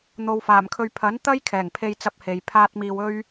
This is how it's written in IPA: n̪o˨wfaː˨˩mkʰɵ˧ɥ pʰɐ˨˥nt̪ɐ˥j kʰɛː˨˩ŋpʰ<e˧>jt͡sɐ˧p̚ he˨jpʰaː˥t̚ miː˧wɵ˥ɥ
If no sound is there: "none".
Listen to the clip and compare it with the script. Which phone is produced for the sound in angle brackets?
e˧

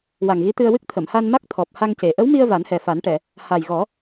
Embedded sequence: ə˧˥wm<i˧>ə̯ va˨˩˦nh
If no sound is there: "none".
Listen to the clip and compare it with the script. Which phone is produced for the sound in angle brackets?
i˧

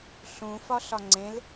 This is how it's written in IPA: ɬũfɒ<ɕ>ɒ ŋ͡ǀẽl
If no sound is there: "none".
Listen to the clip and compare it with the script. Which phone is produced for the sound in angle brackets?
ɬ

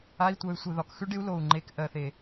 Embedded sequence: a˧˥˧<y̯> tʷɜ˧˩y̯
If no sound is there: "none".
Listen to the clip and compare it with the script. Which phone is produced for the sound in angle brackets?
i̯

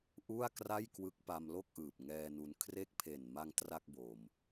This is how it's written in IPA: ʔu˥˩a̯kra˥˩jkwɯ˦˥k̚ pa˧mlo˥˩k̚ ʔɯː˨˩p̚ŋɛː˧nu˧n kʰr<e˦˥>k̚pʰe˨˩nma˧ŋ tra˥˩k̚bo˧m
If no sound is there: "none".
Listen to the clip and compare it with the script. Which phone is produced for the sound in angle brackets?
e˦˥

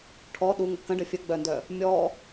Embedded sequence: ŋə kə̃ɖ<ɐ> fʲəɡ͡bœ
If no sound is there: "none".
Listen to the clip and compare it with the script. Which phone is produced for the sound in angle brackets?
ə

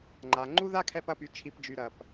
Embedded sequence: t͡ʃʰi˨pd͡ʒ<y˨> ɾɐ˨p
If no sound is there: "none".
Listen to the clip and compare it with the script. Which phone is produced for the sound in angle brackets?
y˨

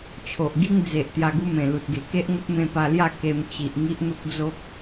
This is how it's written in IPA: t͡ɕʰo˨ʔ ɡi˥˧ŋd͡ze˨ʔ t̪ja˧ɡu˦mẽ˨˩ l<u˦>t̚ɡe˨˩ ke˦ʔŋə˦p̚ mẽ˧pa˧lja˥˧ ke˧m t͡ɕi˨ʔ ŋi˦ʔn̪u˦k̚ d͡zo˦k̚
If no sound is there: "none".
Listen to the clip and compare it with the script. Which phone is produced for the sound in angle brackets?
u˨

